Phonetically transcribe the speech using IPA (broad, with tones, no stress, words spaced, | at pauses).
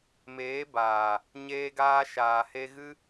meː˨˦baː˨ | ɲeː˧ɡaː˧ ʃaː˨he˧ɣɨ˦